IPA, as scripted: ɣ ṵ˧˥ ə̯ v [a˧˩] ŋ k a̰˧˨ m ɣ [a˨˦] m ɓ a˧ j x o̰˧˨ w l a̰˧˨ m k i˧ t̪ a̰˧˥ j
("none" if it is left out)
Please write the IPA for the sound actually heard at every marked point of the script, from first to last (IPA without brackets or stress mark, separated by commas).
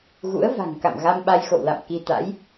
a̤˨˩, a˧